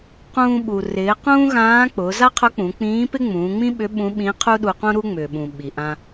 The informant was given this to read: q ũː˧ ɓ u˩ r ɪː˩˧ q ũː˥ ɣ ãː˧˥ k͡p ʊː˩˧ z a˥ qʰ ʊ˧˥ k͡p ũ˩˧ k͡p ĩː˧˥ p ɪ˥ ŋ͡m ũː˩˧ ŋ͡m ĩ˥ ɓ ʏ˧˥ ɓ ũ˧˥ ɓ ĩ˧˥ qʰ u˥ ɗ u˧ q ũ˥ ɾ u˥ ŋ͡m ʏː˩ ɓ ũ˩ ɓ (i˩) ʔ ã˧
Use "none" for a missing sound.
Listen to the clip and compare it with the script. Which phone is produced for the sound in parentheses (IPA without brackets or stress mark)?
i˩